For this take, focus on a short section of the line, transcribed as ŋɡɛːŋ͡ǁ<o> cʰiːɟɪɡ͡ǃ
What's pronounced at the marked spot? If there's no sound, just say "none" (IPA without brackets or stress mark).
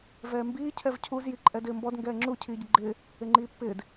u